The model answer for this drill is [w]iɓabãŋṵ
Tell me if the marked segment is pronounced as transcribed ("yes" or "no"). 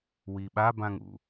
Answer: yes